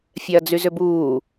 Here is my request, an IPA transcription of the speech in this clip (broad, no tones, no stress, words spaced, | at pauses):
fʲɛɐ̯d͡zyzʏbuː